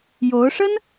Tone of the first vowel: rising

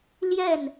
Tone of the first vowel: falling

